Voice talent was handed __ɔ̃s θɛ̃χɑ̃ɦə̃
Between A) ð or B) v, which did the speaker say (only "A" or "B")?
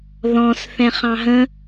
A